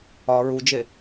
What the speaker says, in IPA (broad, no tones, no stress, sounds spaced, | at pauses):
ɒ ɹ u d͡ʒ e